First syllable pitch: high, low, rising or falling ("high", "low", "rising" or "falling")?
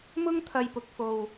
high